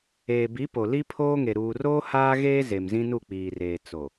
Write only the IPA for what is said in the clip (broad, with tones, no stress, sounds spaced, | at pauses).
eː˨ b i˨˦ p o˨ l i˦ pʰ oː˦ ŋ e˨ ɾ uː˨ r oː˦ h aː˦ ɣ eː˦ z e˨ m z ĩ˦ n u˦˨ k͡p iː˨ r eː˨ t͡s o˨